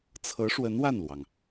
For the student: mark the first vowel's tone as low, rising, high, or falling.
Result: rising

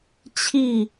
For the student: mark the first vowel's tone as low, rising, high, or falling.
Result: falling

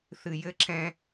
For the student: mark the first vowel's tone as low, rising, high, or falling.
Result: low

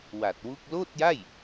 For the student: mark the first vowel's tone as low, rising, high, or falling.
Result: low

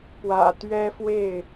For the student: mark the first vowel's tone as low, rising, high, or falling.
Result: low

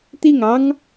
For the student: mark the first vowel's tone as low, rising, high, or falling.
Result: falling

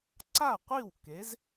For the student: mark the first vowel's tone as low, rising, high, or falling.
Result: falling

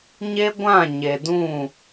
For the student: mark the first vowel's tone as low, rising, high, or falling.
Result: high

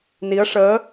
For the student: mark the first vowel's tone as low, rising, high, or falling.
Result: rising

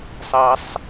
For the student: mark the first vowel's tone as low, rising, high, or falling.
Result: low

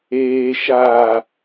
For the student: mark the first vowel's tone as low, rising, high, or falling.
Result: low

